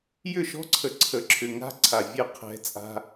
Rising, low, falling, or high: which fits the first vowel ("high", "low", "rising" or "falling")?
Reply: falling